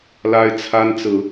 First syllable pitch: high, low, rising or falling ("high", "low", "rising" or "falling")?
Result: high